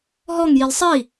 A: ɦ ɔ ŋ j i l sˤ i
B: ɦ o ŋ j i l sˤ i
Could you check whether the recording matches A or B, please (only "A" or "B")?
A